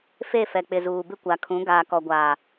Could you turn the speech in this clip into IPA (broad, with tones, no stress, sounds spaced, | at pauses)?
f e˦˨ f ɛ˨ k͡p ɪ˨ z uː˨ b ɪ˦ kʷ a˨ kʰ ũ˨˦ ɡ aː˨ k ɔ˨ ɡʷ aː˨